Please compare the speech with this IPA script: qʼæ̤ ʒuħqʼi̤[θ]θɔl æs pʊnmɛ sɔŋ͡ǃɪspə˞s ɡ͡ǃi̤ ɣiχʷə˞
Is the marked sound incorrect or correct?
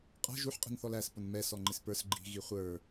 incorrect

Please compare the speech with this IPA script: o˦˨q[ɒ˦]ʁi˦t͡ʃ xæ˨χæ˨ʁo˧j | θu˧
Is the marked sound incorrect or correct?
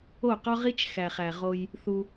correct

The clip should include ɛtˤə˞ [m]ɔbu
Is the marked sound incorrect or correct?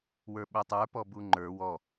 incorrect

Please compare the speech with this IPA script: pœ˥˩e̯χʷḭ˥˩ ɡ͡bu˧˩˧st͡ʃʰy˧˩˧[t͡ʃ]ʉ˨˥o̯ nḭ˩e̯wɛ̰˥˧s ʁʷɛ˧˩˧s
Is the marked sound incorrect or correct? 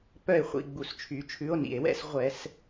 incorrect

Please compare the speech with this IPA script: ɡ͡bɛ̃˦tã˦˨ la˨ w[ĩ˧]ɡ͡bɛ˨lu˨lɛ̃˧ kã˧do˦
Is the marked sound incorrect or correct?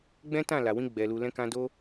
correct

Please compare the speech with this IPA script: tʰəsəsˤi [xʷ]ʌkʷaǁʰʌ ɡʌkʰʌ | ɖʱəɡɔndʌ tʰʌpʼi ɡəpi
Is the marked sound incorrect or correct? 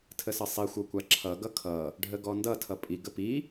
correct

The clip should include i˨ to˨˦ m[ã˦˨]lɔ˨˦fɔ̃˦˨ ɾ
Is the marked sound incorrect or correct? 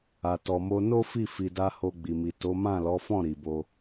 correct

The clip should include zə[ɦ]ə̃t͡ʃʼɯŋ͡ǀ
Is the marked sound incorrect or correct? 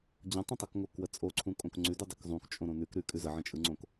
incorrect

